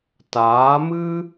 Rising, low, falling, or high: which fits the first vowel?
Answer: rising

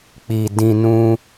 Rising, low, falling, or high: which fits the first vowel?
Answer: low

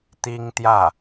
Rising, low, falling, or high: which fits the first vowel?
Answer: high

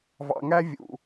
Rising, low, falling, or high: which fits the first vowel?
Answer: low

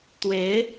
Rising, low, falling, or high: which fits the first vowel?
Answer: rising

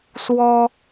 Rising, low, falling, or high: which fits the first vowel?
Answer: high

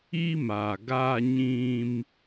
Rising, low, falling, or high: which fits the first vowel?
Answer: high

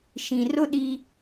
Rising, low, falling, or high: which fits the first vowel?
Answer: low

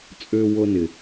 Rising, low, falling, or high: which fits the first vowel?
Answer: high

